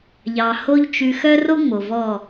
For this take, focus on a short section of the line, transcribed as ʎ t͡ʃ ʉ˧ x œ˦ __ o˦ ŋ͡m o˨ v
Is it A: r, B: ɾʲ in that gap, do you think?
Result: A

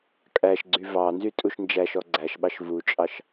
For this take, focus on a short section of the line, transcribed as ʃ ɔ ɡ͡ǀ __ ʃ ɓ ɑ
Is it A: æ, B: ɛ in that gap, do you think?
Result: A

